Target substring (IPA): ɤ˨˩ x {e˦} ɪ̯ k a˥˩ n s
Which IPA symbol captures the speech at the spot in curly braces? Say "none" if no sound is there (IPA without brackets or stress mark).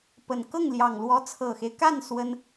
e˦